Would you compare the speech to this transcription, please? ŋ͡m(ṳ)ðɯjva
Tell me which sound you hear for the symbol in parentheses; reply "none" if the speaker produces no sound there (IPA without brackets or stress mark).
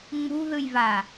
ṳ